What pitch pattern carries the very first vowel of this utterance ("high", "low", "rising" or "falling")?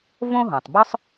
high